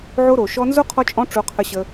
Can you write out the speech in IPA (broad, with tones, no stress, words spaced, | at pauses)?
ʕo˦ɾo˨ ʃɔ˧nzo˦ qʰɔ˦t͡ʃʼɔ̃˦ ʈ͡ʂo˧qʰə˧ɕə˧